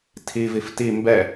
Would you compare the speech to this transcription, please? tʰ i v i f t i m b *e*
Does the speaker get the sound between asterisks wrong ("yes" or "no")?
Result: yes